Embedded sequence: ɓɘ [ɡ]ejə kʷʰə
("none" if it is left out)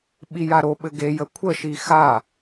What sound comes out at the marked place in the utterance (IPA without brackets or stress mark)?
ɡ